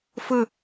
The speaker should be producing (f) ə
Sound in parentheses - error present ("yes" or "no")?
no